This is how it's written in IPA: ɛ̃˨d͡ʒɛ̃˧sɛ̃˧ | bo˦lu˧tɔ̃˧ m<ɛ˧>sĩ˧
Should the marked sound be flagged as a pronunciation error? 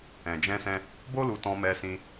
no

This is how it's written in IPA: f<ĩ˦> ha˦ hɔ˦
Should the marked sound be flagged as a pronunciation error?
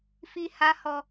yes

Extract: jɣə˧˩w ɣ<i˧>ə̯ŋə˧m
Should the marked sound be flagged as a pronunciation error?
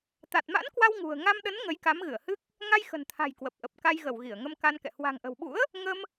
yes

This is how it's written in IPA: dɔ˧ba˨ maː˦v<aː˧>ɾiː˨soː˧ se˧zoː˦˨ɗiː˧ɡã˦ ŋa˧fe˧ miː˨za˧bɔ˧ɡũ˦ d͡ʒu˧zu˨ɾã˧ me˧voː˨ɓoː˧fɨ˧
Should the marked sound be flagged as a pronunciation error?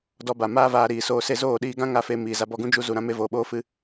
no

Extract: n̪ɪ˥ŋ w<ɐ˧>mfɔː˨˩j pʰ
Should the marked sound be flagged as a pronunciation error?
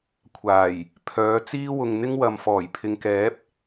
yes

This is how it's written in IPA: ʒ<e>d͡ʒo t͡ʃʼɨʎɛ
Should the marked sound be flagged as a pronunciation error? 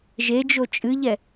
no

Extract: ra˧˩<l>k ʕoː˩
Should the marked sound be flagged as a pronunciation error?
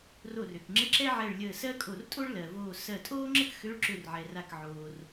yes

